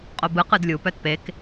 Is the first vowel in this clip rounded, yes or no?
yes